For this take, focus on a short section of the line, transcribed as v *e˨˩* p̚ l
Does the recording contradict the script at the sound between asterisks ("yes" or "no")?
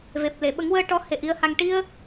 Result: no